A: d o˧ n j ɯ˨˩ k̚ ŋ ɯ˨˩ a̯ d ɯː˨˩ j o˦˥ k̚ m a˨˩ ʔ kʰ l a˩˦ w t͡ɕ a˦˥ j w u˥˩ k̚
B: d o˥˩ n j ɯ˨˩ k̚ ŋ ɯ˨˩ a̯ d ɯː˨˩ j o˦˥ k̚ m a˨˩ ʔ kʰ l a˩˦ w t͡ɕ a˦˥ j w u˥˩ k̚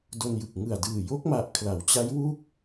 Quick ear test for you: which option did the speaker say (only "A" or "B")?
A